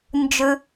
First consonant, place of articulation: alveolar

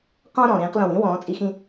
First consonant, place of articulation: uvular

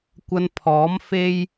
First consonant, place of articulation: velar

